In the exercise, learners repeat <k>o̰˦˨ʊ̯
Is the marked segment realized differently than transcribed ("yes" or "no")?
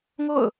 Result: yes